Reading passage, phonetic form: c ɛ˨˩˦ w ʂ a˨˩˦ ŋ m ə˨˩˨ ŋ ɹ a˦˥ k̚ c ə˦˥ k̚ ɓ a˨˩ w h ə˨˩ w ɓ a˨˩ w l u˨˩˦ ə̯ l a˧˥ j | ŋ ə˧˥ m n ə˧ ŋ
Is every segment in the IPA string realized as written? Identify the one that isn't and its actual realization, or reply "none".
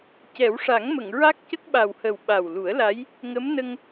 none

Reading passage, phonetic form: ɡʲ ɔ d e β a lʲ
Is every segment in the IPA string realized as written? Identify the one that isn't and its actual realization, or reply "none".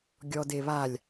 none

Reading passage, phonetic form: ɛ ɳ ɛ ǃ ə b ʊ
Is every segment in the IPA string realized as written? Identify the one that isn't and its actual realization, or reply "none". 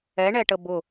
ǃ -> ʈ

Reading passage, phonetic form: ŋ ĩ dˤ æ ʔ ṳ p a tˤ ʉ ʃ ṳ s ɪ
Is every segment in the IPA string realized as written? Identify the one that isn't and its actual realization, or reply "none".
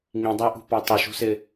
none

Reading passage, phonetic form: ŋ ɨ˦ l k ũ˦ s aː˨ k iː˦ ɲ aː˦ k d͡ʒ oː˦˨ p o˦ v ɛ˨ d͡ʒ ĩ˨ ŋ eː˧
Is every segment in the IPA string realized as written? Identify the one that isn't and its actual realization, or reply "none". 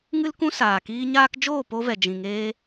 none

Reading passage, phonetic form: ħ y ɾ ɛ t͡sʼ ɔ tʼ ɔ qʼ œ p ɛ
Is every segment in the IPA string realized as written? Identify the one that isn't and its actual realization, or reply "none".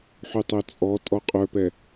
ɾ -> tˤ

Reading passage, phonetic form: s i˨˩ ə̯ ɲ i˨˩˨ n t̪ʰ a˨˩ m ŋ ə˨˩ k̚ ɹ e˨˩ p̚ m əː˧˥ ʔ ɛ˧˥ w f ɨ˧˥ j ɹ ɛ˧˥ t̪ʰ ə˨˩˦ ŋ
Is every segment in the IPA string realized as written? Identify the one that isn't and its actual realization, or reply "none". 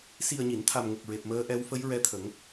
ɨ˧˥ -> ə˧˥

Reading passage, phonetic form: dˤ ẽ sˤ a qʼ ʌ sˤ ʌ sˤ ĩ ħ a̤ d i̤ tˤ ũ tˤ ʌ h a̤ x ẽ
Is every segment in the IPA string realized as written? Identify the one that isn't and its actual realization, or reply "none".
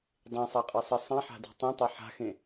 h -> ħ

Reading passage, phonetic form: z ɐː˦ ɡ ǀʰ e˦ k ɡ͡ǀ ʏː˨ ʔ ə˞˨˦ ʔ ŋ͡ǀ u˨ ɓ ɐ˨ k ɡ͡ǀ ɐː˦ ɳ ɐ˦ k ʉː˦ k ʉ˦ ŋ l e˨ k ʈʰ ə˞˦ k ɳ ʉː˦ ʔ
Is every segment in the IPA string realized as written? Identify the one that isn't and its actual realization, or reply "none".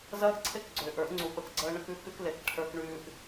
ŋ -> k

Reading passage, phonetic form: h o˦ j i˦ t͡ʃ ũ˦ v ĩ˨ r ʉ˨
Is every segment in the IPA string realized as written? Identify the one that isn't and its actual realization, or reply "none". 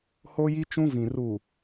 ʉ˨ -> u˨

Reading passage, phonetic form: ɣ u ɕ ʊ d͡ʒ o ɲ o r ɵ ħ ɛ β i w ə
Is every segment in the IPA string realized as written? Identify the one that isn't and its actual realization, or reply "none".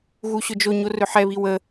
none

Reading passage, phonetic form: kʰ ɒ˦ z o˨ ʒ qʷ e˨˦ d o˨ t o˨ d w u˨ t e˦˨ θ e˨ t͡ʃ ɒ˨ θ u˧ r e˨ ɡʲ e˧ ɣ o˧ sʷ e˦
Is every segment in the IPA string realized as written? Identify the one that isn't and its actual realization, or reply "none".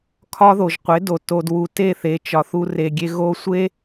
z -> ð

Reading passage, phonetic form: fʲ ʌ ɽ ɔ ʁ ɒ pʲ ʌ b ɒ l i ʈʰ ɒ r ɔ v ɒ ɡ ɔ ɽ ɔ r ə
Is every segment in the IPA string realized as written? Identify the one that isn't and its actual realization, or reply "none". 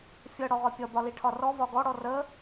none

